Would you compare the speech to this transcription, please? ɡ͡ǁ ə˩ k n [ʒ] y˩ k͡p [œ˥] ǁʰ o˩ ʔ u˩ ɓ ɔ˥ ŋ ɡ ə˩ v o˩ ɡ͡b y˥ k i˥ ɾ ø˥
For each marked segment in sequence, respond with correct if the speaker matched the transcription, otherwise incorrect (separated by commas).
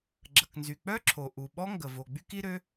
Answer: incorrect, correct